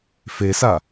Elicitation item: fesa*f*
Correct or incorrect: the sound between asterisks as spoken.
incorrect: none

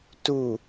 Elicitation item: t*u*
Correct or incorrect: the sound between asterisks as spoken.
correct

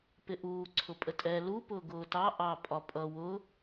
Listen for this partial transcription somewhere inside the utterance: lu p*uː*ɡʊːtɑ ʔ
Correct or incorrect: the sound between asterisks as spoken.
incorrect: ʊː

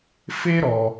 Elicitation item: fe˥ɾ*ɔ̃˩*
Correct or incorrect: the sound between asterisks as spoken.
incorrect: ɔ˩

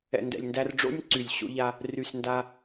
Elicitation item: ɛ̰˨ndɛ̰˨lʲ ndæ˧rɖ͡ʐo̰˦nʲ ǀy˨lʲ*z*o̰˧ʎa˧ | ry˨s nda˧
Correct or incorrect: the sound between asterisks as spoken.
incorrect: ɕ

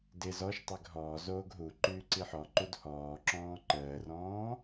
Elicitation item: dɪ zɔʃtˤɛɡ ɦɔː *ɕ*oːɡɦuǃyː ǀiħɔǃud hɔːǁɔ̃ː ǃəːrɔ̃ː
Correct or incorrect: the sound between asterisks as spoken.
incorrect: z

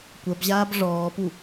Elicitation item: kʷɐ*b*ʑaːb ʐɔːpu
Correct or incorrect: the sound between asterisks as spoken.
correct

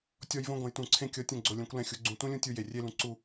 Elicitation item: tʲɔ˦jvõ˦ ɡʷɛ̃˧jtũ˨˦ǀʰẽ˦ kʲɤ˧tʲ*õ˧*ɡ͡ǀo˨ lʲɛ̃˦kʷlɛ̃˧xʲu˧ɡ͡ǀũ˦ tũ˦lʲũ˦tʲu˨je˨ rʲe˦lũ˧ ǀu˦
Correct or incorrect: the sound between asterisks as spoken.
correct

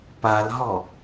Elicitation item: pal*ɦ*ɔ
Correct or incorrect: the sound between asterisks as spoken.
correct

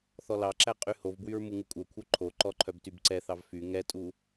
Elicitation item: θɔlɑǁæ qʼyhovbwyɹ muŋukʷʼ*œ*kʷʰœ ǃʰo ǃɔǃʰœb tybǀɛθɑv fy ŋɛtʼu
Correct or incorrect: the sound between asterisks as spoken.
correct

